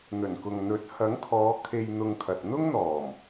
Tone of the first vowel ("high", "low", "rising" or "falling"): low